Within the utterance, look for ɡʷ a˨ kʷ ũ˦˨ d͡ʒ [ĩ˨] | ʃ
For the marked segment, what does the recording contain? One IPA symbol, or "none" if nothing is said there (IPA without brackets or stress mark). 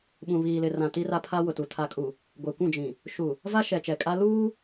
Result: ĩ˨